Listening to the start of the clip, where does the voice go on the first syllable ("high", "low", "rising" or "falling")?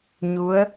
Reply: rising